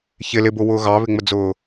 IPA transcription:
ç ɪ l ɪ b ʊ w ʊː ɣ ɑ β ɪ ŋ͡m ə d͡z ʊː

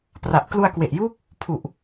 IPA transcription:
p r a˨˩ ʔ k l u˧ a̯ k w e˨˩ ʔ j uː˦˥ k̚ | pʰ u˨˩ ʔ

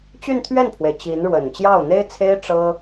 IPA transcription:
t͡ɕ y˥˧ n t̪ʰ ɥ ɛ˥˩ n pʰ w e˩ ɪ̯ t͡ɕ i˧˥ n ɻ w ə˨˩ n t͡ɕ j ɑ˥˩ ʊ̯ n̪ e˥ ɪ̯ t͡sʰ e˥ ɪ̯ ʈ͡ʂ ɤ˥

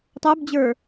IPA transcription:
tˤ ə˞ b d͡ʑ ə˞

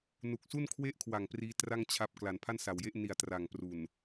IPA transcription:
n u˨˩ k̚ s u˥˩ n kʰ w e˥˩ ʔ kʰ w a˨˩ ŋ p r iː˦˥ t r a˥˩ ŋ t͡ɕʰ a˦˥ p̚ k l a˩˦ n pʰ a˥˩ n s a˨˩ w j e˥˩ ʔ n i˨˩ a̯ t r a˨˩ ŋ p r u˨˩ n

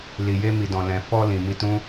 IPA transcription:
l i˨ j e˧ m i˨ d ɔ̃˨ l ɛ̃˨ f ɔ˧ l ĩ˨ m i˧ t ũ˦

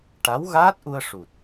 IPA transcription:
ʈ a˧˥ w ɣ aː˦˥ t̚ ʔ u˧ ə̯ ʂ u˨˩ t̚

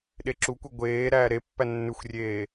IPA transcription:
ɗ e ǁ u kʷ ɛ ɡʷ eː ɾ æː ɾ e pː æ nː ʉ xʷ rʲ eː

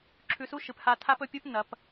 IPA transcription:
ǁʰ ʉ˧ s u˥ ʃ ɨ˩˧ p h a˧ tʰ a˥ p ɵ˧ pʲ u˥ p n ɐ˩˧ p

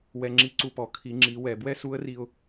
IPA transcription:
w ɛ˧ ŋ͡ǁ i˧˥ ǀ u˧ p ɔ˩˧ kʰ i˩˧ ŋ͡ǁ i˩˧ w ɛ˩ b w ɛ˥ s u˧˥ ə̯ r i˧ ʊ̯

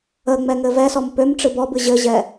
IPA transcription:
ə ŋ͡m ɛ ŋ ɘ v ɛ s ɔ m p ø m ʈ͡ʂ ɨ b ɔ b ɨ ʑ ɘ ʑ ɛ

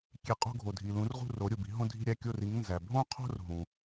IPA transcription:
kʲ e˧˩˧ qʼ o̤˥˧ ɡʱ o˩ dʱ i˩ l ũ˩˥ r ʁ ṳ˥˩ r o˩˥ ɾʲ u˩ b i̤˩˥ ɦ õ˥˧ dʱ i̤˥˧ ɾʲ æ˥˧ kʲ o˥˩ r i˩˥ ŋ n z æ˩ bʱ õ˥˧ qʰ o̤˥˧ r ɦ ũ˩

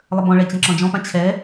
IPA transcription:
lˠ ə b ɔ̃ ɭ ɛ t͡ɕ ɛ̃ ǁ ɔ̃ d͡ʒ ɔ̃ p ã t͡ɕʰ ɛ

